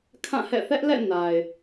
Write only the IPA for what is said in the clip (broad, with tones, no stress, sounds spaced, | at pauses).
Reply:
kʰ ã˦˨ h ɛ̰˦˨ θ ɛ˦ ʔ l ɛ̰˦˨ n a˨ ɪ̯